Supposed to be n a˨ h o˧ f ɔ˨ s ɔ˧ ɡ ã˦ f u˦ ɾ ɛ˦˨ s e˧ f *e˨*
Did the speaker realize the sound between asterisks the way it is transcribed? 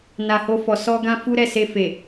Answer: yes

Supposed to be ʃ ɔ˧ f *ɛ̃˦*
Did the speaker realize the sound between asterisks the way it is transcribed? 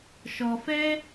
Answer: no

